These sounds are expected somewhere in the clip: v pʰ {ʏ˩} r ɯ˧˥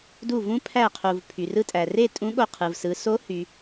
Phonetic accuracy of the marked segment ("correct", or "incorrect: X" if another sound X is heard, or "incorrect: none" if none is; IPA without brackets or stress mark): incorrect: y˩